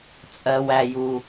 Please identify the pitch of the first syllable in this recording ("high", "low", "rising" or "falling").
low